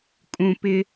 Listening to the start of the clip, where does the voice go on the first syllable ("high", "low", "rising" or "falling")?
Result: low